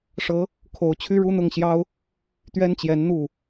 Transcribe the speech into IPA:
ʂ ɤ˧˥ | kʰ o˧˥ ʊ̯ t͡ɕʰ y˥ ɻ u˥ n̪ ʊ˥˩ ŋ ɕ j ɑ˥ ʊ̯ | t̪ ɥ ɛ˥ n t͡ɕ j ɛ˧˥ n n̪ u˥˩

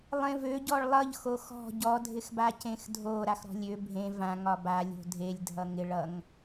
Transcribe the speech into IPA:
lˠ ẽ v ø ɟ ɔ ɭ lˠ ʌ ʎ x o x ɔ̤ ɟ ɔ dʱ ɪ x b a c ẽ x dʱ o ɾ a x ɾ ɔ̤ lʲ ø bʱ ẽ v ã ŋ ɒ b a lʲ o̤ dʱ e lʲ dʱ ʌ ŋ ɪ ɭ ʌ ŋ

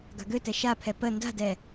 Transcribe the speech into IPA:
ɡ a̤ ɡ ø t ɛ ʃ a pʰ ɛ p ə n d a̤ d ɛ

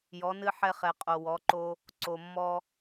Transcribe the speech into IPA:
j ɔ˩˧ n ɨ˧ ħ ɛ˧ χ ɛ˩ qʼ o˩ w ɔ˩˧ ǃ o˧ | ǀ o˩ mː ɔ˧

